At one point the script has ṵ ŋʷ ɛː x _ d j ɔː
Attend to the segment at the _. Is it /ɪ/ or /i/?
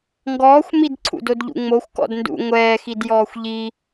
i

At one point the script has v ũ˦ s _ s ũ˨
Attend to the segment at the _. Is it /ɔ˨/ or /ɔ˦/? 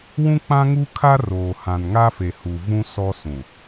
ɔ˦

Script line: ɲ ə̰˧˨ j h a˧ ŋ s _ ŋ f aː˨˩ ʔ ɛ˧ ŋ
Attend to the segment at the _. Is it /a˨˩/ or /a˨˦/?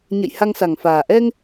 a˨˩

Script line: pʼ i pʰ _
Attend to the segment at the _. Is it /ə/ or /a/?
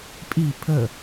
ə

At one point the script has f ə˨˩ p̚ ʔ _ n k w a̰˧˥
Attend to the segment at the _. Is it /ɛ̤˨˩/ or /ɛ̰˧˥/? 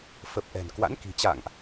ɛ̤˨˩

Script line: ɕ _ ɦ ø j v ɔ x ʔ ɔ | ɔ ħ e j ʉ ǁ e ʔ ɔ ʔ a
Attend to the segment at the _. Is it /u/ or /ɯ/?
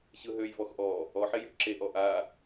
ɯ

